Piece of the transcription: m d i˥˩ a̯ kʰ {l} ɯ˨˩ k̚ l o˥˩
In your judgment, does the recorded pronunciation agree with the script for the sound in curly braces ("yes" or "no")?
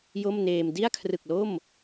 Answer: no